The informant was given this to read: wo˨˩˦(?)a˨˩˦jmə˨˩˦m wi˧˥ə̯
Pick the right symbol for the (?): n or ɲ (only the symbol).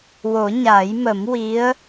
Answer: ɲ